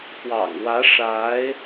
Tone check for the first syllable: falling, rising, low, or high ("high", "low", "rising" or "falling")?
low